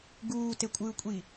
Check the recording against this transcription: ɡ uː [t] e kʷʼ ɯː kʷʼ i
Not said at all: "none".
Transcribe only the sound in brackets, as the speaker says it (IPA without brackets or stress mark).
t